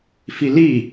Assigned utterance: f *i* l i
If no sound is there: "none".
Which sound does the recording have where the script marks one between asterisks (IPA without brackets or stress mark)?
i